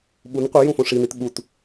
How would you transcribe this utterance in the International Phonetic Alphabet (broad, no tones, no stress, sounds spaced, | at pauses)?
ɓ u n qʷ ɯ j ũ f õ ʂ i n i t ɓ u t